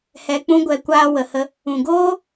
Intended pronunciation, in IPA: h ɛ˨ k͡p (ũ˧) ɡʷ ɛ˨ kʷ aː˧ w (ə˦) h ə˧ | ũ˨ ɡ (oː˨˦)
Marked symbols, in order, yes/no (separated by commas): yes, no, no